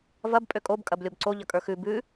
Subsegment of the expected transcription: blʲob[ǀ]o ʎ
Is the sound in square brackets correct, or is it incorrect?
correct